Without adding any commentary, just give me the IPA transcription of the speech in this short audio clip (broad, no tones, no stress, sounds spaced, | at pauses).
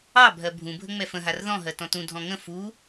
ɑ bʱ ɜ bʱ ũ bʱ ə ŋ͡m ɛ f ə̃ ɦ a r ð ɔ̃ ɦ ɜ t ɔ̃ t ũ dʱ ɔ̃ ŋ ə̃ f u